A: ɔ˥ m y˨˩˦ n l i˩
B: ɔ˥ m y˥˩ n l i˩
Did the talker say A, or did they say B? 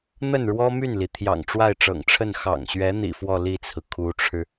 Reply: B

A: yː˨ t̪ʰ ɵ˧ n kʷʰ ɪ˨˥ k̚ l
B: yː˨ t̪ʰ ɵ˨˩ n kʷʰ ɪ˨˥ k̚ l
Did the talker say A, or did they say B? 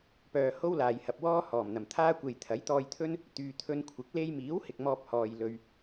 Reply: A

